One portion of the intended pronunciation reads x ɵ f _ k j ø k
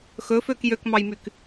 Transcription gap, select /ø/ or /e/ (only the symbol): ø